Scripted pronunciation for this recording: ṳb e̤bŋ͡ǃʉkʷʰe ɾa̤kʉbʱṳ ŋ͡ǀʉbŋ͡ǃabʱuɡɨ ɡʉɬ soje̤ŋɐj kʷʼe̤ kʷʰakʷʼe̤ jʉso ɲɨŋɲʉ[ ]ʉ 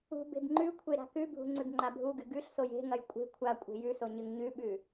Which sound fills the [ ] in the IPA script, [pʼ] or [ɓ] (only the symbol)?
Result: ɓ